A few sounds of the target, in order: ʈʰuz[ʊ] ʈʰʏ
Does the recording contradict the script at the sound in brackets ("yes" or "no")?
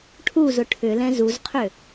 no